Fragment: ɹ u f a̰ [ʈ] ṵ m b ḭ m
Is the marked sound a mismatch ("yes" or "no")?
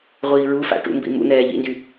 no